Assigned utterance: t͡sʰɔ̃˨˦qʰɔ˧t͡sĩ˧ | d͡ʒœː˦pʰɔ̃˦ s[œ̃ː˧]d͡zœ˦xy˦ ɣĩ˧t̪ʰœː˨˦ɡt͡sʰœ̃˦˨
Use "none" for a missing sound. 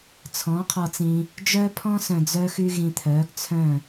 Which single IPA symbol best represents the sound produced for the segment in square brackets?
œ̃˧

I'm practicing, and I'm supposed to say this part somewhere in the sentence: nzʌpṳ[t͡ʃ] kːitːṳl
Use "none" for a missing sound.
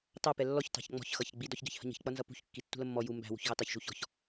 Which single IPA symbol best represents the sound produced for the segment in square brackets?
ç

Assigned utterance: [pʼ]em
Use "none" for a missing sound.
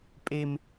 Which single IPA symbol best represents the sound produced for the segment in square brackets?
pʼ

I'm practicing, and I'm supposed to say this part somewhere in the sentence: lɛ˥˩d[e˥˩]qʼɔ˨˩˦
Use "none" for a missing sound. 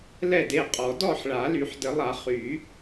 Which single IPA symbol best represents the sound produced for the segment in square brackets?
e˥˩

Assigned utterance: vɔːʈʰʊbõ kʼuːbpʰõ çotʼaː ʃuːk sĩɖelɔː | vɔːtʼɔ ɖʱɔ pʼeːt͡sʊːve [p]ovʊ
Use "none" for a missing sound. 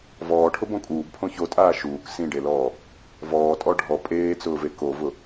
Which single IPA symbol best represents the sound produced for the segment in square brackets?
k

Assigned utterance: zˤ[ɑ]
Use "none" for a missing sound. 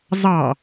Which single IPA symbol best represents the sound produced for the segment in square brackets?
ɑ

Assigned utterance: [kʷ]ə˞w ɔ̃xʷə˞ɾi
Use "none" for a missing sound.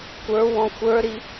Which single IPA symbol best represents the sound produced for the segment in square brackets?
kʷ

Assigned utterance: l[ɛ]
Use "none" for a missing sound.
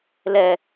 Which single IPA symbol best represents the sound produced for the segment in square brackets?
ɛ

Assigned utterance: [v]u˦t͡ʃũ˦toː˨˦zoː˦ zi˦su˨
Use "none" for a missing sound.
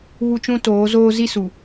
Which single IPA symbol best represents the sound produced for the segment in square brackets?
β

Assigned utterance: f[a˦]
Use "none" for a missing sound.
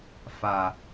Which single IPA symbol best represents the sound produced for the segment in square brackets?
a˨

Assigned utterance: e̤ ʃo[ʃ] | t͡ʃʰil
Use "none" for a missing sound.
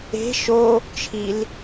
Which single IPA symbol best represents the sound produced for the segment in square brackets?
none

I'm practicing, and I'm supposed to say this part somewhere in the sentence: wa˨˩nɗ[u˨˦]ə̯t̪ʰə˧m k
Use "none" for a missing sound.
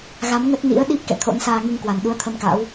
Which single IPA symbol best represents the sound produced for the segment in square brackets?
u˨˦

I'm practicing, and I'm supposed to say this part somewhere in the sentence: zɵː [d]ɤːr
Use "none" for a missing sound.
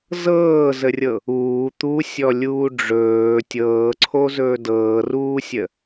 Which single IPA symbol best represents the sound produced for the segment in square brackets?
d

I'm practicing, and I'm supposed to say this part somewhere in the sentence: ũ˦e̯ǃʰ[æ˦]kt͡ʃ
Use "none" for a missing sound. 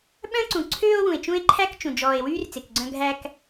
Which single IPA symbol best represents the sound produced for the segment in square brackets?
æ˦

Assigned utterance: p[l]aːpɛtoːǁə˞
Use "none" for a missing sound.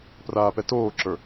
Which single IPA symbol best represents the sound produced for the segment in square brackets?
r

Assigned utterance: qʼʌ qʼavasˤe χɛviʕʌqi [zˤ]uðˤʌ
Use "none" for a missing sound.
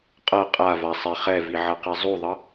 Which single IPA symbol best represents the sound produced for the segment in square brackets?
zˤ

